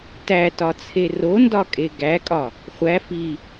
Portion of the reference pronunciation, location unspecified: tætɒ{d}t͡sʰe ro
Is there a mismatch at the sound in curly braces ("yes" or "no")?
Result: yes